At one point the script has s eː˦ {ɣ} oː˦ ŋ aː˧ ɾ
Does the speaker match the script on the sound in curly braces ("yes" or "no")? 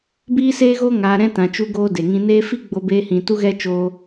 yes